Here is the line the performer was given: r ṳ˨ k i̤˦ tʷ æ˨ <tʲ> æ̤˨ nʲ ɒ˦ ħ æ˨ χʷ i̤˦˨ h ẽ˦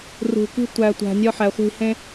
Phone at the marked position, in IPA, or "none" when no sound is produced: tʷ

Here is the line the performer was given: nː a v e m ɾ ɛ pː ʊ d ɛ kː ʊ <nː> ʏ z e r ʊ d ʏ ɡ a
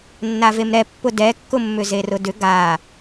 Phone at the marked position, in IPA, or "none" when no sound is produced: mː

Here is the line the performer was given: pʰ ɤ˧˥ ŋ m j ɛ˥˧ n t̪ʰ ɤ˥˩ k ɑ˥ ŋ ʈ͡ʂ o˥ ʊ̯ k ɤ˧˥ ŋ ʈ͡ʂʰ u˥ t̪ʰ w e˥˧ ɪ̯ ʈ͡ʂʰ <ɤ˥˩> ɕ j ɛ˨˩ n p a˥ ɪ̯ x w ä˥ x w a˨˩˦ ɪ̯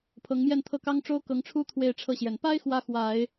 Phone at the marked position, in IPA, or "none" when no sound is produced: ɤ˥˩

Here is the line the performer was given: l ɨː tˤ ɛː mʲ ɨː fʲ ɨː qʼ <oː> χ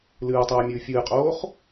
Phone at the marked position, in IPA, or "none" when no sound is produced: oː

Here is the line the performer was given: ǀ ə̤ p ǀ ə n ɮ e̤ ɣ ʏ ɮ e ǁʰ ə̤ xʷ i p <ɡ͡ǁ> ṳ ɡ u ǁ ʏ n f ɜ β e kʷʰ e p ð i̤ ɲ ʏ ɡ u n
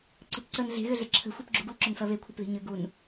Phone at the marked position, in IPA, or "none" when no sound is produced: ɡ͡ǁ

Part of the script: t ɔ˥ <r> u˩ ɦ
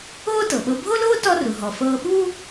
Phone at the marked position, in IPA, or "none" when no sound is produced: r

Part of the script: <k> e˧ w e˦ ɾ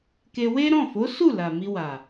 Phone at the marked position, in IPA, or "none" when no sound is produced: k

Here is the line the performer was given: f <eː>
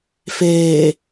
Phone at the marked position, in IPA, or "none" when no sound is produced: eː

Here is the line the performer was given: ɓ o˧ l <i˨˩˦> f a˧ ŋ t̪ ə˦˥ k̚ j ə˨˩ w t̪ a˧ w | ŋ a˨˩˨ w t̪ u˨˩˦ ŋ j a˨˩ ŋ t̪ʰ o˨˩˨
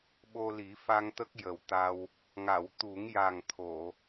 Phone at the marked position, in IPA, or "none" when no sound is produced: i˨˩˦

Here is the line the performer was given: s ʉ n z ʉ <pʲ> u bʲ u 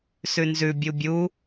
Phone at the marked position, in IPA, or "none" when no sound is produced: bʲ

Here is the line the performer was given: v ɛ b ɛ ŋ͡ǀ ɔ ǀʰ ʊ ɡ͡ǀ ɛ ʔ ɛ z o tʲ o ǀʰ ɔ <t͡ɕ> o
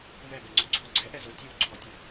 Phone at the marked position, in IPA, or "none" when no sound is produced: tʲ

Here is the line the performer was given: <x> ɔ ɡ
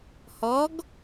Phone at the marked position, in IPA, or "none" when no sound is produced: h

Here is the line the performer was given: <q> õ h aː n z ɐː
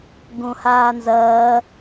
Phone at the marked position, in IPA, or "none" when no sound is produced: ɡ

